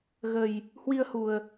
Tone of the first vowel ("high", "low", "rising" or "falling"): low